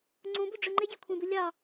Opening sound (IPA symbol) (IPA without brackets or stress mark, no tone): ŋ͡ǀ